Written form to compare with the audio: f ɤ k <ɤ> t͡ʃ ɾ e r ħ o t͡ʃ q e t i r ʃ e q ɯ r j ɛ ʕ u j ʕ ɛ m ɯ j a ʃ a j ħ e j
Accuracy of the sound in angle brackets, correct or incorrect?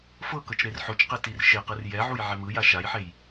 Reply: correct